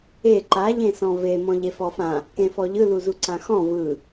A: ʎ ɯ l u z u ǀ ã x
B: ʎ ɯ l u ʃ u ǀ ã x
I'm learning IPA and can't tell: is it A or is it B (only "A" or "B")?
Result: A